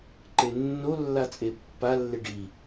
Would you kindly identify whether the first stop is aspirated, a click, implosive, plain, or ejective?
click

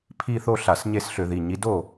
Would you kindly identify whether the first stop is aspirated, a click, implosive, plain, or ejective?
aspirated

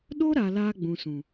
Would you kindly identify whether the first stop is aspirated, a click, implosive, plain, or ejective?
implosive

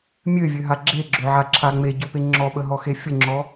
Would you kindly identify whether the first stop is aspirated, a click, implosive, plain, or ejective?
click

